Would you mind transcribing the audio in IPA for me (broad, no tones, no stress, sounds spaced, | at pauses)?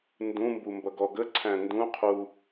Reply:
n d ũ m b u m b ʌ ɡ ɔ ɡ ə ǀʰ æ̃ n d ũ qʰ u